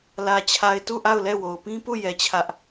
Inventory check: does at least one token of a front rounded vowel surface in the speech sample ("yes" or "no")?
no